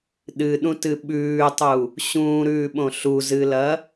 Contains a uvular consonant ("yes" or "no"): no